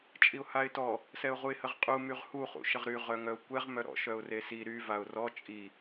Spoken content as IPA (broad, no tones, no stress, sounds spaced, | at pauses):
t͡ʃʼ i ʊ̯ h a ɪ̯ t ɔ | s ɛ ʊ̯ ʁ u ɪ̯ h ə ʁ qʼ u m y ʁ h u χ ṵ ʃ ə ʁ ɾ y ʁ œ ŋ œ ʊ̯ kʷ ɛ ʁ m œ ɾ ɔ̰ ʃ œ ʊ̯ r e s i ɾ y v a ʊ̯ r ɔ t͡ʃʼ i